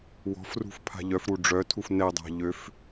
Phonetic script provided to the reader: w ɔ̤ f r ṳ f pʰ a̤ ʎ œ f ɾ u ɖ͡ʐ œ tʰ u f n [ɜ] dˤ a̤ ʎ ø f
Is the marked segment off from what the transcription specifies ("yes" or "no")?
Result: yes